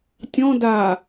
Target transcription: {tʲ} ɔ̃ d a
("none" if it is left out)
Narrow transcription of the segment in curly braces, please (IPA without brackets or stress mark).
tʲ